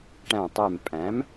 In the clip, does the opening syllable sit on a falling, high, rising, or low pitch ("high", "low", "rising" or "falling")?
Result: low